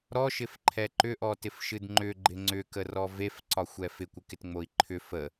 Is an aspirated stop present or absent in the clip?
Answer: present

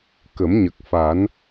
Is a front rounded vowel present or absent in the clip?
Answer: absent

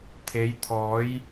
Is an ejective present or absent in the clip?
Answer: absent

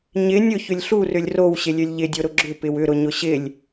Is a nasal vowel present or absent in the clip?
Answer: absent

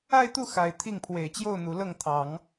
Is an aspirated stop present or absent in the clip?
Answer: present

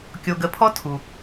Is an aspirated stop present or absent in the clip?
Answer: present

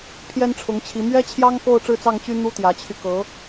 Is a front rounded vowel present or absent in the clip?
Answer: present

